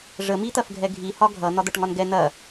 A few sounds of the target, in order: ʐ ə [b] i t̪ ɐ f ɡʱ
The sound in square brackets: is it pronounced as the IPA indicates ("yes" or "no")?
no